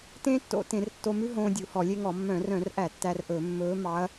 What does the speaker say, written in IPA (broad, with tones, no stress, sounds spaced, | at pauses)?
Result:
t ẽː˥ tː o̰˧˩˧ t ẽ˧˩˧ r tː o˧ m ʉ˥ ɦ õː˧ dʲ u˧˩˧ h ɔ˧˩˧ lʲ e˥ ŋ ɔ˧˩˧ mː œ̃˧˩˧ r œ̃˧˩˧ r ʔ æ˧˩˧ tː æ˧ r ʔ ɵ˧˩˧ mː ɵː˧˥ m ɑ˧˥ ɐ̯